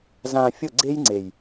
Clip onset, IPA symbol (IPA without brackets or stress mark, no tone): z